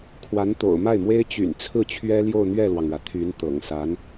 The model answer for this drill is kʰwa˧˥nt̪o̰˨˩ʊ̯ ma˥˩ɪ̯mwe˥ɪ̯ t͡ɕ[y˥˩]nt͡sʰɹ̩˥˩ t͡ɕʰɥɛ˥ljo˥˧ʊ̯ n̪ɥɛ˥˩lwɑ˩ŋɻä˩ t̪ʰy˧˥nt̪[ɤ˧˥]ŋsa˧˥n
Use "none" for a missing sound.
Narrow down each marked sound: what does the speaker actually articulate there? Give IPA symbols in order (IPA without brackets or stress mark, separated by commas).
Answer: y̰˨˩, ɤ̰˨˩